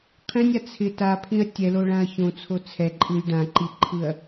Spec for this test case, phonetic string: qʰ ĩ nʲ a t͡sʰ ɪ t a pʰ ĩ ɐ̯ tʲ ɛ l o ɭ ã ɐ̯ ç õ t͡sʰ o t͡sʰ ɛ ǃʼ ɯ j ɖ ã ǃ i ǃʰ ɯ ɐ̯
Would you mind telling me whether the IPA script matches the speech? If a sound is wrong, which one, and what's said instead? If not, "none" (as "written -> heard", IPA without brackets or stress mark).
none